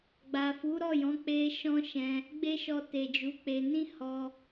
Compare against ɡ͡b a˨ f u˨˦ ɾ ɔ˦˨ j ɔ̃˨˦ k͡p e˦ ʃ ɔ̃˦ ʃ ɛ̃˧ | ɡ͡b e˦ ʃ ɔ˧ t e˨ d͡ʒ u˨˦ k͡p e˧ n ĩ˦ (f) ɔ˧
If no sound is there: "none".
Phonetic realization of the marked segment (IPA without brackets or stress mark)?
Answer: h